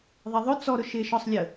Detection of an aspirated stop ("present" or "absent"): absent